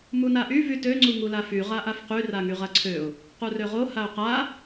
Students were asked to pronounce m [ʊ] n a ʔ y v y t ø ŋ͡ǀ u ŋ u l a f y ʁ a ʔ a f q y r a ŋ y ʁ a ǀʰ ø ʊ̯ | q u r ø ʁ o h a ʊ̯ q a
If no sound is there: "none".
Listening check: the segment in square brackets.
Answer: u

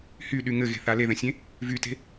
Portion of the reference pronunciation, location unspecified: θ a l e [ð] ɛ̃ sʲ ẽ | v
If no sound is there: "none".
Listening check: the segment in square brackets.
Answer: ð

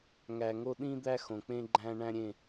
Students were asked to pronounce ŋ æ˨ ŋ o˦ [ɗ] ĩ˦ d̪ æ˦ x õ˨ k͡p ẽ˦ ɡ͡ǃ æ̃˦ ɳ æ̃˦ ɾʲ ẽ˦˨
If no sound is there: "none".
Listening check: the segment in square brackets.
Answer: ɗ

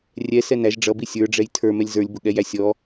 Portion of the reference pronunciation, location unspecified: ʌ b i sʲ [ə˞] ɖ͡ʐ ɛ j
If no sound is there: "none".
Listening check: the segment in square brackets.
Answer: ə˞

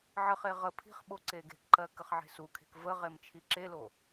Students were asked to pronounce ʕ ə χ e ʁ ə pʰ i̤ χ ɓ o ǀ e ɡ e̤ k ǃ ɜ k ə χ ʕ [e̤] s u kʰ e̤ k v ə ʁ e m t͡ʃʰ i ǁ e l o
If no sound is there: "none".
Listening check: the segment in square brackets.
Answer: e̤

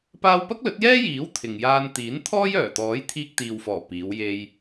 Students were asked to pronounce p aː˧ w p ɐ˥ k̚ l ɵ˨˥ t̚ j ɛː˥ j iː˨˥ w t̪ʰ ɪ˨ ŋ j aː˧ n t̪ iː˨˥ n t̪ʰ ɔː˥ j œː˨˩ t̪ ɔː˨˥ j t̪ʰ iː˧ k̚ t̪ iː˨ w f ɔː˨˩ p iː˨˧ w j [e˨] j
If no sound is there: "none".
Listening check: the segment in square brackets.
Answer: e˧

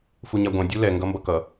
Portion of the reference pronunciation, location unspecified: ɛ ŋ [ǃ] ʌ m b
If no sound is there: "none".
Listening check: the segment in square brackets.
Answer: ɡ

